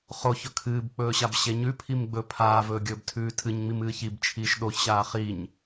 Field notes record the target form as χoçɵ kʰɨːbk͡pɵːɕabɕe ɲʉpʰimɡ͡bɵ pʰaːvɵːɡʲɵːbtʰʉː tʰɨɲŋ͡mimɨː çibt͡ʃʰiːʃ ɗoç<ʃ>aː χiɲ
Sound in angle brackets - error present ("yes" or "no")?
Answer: yes